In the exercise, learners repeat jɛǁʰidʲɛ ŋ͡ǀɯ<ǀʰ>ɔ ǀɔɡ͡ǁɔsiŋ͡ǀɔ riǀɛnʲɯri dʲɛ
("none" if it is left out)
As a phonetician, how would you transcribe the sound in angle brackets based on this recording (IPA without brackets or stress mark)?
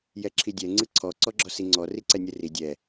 ǀʰ